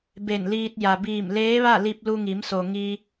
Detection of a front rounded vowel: absent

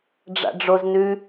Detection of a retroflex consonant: present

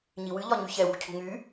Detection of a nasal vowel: absent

